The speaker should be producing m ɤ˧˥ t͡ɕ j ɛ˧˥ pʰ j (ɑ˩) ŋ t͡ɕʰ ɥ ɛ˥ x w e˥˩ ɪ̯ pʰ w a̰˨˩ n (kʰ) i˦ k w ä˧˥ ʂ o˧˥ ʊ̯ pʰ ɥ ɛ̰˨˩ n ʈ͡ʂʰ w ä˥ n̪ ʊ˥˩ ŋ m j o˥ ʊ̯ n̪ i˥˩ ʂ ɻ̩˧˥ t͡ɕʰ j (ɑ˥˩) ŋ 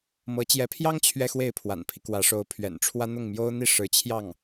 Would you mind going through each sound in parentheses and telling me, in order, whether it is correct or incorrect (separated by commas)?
incorrect, incorrect, correct